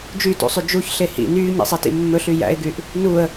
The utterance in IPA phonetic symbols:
d͡ʒ y t ṵ sˤ y d͡ʒ u ç ɬ e h ḭ n yː ɲ ḭ sˤ e t ḭ mː ɵ ɬ y j æ̰ ɪ̯ ɡ y ʔ | n u ə̯

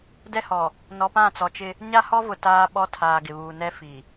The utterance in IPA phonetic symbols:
d ɛ˦ h ɔ˨ | n ɔ˨ p ã˦˨ t͡s ɔ˨ t͡ʃ ɪ˦ | ɲ a˦ h ɔ˦ v ʊ˨ t aː˦ ɓ ɔ˦ tʰ aː˨ ɡ ɪ˨ β uː˨ n ɛ˦ f i˨

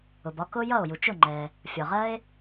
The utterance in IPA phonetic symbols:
ʊ˩ b ɒ˥ k ʊ˥ j ʌ˥˩ o̯ j u˩ t͡ʃ ʊ˥˩ ŋ͡ǃ ɛ˩ | fʲ ɒ˩ ʁ ɜ˥ e̯

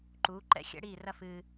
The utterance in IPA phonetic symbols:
ǃ uː˩˥ ǃ ɛ̰˥˩ xʲ ɛ̰˥ ɽ iː˥˩ r ɐ˥ f ɨː˧

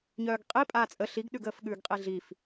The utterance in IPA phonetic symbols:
ɲ œː ɡ qʼ i pʼ aː t͡sʼ ə ɬ i ɡ ɗ ʉ ɡ əː f ɠ ʉː ɡ qʼ i ɮ i f

